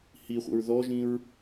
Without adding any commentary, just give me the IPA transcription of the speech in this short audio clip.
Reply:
h i χʷ ə̰ ɹ ð ɔ ʒ ĩ ɹ

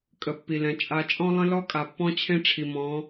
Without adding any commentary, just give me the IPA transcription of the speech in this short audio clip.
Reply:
kʼ ə˨ pː i˨ l ɛ̃˨ t͡ʃʼ a˨ t͡ʃʼ ɔ̃˦ lˠ ə̃˦ l ɔ˦ kʼ a˨ pː ɔ̃˦ t͡ɕʰ ẽ˦ ʈ͡ʂʰ i˨ m ɔ̃˨˦

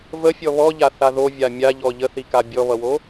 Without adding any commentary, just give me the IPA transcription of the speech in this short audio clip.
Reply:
v ə fʲ ɔ β ɔ ʎ a θ a ð o vʲ a mʲ a ʎ ɔ ʎ ə θ i k a bʲ ɔ β ʌ w o

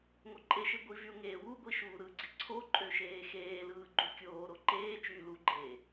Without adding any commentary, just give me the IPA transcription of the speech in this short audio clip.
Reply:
ŋ o ǃʼ e ʃ e ɡʷ i v y ʊ̯ ŋ eː w u ɡʷ i ʃ uː ɾ ɯ ɡ͡ǀ i ǀʰ o ǃʼ ø ʃ eː x eː l ɯː ɡ͡ǃ u kʲ oː ɾ o ǃ eː t͡ʃ yː l u ɡ͡ǃ eː

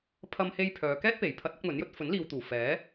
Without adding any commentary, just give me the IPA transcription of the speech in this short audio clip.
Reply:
pʰ ɐ˧ m h e˧ j pʰ œː˨˧ k ɛː˥ t̚ p e˨˩ j pʰ ɐ˧ t̚ ɐ˨˥ k̚ m ɵ˨˥ n j ɵ˨˥ t̚ f ɵ˨˥ n l iː˨ w t̪ uː˨˩ f ɛː˨˥

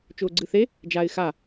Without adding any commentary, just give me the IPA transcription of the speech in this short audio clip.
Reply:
t͡ʃ ʊː ɡ͡ǀ ɨ θ e | d͡ʒ a ɪ̯ x a

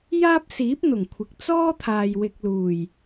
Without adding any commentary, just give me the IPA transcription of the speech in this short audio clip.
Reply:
j aː˥ p̚ s iː˨˥ p̚ n̪ ʊ˨˩ ŋ kʷʰ ɪ˨ k̚ t͡s ɔː˥ t̪ʰ aː˨ j w ɪ˨ k̚ l uː˨˩ j

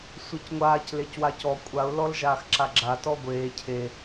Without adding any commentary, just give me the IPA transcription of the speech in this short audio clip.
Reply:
sʷ e c ŋʷ aː c l e c w a c ɔ kʷʼ a ʊ̯ l ɔ l ʒ aː x ǁ a ɡ͡ǁ a t ɔ ɡʷ eː cʰ e

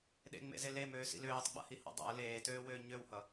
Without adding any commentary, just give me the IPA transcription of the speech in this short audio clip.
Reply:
ɗ ḛ ŋ͡m ḛ z e l e m øː s ḭ l øː tˤ ɡ͡b a̰ h i h ɑ̰ dˤ a̰ ə̯ l eː t øː w øː ɲ ø w h ʌ

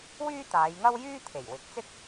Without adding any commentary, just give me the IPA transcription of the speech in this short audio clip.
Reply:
w yː˥ t̪ aː˨˧ j ŋ ɐ˥ w j yː˥ t̪ʰ e˨˩ j w ɪ˨˥ k̚ t͡s ɪ˥ k̚

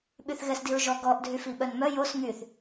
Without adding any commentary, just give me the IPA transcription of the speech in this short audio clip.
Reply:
ɓ y θ ɣ ɛ s d i ɹ ʒ ɔ ɡ ɔ ʔ dʱ y f i ɓ œ n m œ j o s ŋ y θ

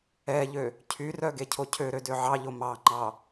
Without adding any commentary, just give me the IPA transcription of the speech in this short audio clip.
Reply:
ɛ ʎ ø | cʰ y r œ ɡ e cʰ o cʰ ø ɾ ø d ø ʕ ɑ ʎ o m ɑ ŋ͡ǃ ɑ

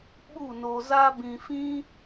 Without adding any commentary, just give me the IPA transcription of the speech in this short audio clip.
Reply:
ɓ u˦˨ n o˧ z a˦ b ĩ˧ f ĩ˦

